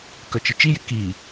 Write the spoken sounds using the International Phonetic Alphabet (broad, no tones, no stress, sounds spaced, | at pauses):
k œ t͡ʃ ɪ t͡ʃ i j ɪ k i